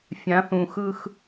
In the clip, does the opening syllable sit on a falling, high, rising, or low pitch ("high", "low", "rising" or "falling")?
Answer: rising